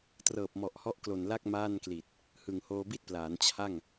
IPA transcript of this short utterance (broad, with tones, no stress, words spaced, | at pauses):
trɤː˨˩p̚mɔ˨˩ʔhɔ˦˥ʔ klo˨˩nla˥˩k̚ maː˥˩n kli˨˩t̚ | hɯː˨˩ŋhoː˧bi˥˩t̚plaː˩˦n t͡ɕʰa˥˩ŋ